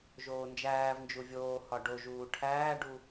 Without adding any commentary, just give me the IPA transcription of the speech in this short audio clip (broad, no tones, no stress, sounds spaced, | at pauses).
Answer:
ʒ oː n d͡ʒ æː v n d͡ʒ u vʲ oː h ɒ ɖ o ʒ uː ʈʰ æː ɖ u